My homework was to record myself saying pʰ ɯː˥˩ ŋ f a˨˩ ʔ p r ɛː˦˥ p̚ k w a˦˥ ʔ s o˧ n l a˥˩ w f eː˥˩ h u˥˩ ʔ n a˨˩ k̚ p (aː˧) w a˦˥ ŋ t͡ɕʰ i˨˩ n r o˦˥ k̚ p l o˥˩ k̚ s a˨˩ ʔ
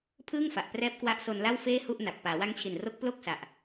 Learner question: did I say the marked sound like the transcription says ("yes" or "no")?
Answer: no